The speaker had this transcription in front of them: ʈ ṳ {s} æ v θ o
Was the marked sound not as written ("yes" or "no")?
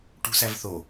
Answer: no